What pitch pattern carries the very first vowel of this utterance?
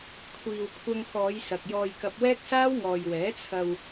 low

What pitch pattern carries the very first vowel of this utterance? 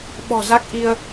low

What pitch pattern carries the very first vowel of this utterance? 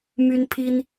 high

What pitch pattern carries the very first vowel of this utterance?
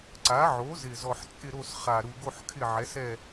rising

